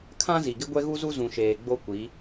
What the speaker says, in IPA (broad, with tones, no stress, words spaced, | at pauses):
kʰã˦zi˨ɡɪ˦ ɡʷɛ˦ɣu˦zu˦ zũ˨ʃeː˨ ɡ͡bo˦kʷi˨˦